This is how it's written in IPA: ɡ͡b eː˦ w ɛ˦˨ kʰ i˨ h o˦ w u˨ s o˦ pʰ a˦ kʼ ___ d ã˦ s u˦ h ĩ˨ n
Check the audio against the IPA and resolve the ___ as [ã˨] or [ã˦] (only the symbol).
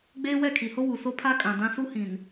ã˨